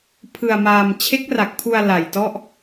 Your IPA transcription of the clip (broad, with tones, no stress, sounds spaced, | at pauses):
pʰ ɯ˧ a̯ m aː˧ m t͡ɕʰ e˦˥ k̚ r a˨˩ k̚ pʰ u˧ a̯ l a˨˩ j t ɔ˥˩ ʔ